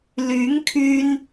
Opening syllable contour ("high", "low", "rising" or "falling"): rising